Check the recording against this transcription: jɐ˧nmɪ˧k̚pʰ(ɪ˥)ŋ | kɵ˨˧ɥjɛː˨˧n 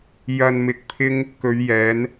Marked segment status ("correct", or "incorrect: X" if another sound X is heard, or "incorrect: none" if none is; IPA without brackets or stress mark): correct